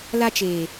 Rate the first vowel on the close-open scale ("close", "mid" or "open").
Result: open